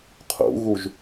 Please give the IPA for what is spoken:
qʰṵɣuʒ

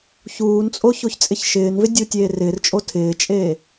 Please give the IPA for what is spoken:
çuːnt͡sʼo çoçt͡sʼɪçʃɪːnvɪ dʲutʲeːrɪːrt͡ʃʼo tʰɪːt͡ʃʼeː

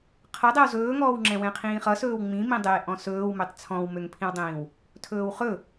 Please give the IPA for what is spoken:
qʰʌdˤɛw zɵːŋɔːwŋ͡ǁɛ̃ wɛ̃qʰĩːχʌsɵːw ŋ͡mĩmĩdˤeː ʔɔ̃sɵːwmøtˤ t͡sʰɔ̃wmøŋpʰĩwdˤĩːw | tʰɵːwχɵ

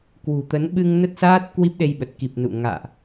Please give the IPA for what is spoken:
kwṳ˨˩t̪ə˨˦n ɓɨ˧ŋ nə˦˥t̚saː˦˥t̚ kwi˦˥p̚ɗe˧jɓə˨˩t̚ ki˨˩p̚nṵ˧˨ ŋa̰ː˧˨ʔ

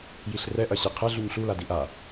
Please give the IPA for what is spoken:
jiɬrɛ ʔɐɕiqʰɛ ɮuɲɬu ladiʔa

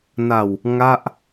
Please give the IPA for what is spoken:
na˨˩w | ŋa˥˩ʔ

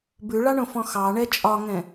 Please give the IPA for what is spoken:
bʉɭɑɳõfɔ̃ xɑɳɛ t͡ʃʼɒŋɛ̃

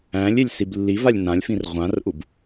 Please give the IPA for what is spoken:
æ̃lʲelʲ siblːivalʲ nãlʲfĩr ʁʷãrʔub

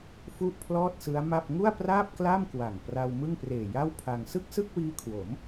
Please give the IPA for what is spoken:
fu˥˩ʔpʰlɔː˥˩t̚sɯ˦˥a̯ma˥˩p̚ ŋu˥˩a̯praː˥˩p̚kla˥˩mkwa˨˩ŋ pra˧w mɯ˥˩ŋpreː˨˩ja˥˩wpʰa˧ŋ sɯ˥˩k̚sɯ˥˩k̚wiː˦˥kʰwo˩˦m

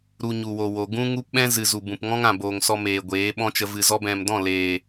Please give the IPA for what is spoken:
ɾu˧ɲu˨wo˨wo˨ ɡũ˦ŋu˦pɓɛ̃˦ zɨ˨zu˨ bũ˨pŋɔ̃˦ŋã˨boː˨ŋ sɔ˧meː˨ ɡʷeː˨˦ɓɔ̃˦t͡ʃə˧ vɨ˨zɔ˧bɛ̃˨mdɔ̃˦˨ leː˨

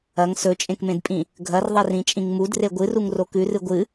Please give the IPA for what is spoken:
ɐŋ sɵt͡ʃʼẽkmẽdpʼĩ | ɡʱɐrðˤerĩt͡ʃʼĩŋ mudre ɡʷɨruŋro kʉrɨ ɡʷɨ

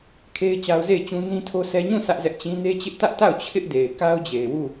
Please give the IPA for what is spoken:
kʰe˦ɪ̯t͡ɕa˦ʊ̯ ze˦˨ɪ̯t͡ɕũ˦ nĩ˦tʰo˦sɛ˦ ɲũ˦˨ sʰä˦ʔzɛ˦ʔt͡ɕĩ˦ ne˦t͡ɕɪ˦ʔtä˦ʔta˦˨ʊ̯ t͡ɕʰɪ˦ʔde˨ɪ̯ka˦ʊ̯ d͡ʑe˨ɪ̯wu˦˨

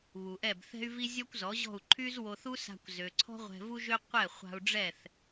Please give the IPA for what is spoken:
βu˩ʔɛ˥˩bθɛ̤˥y̯vi˥ zʲɔ˥kʷzɔ˩˥ʑɔ̤˥˩u̯ ǃʰy˥zwo˧θu˥ sa̤˧kʷzø˩ǀʰɔ̤˥ ʁʷɛ̤˧vu˥ʒø˥ qʷɛ˥˩χʷa̤˧u̯ɖ͡ʐɛ˥˩θ

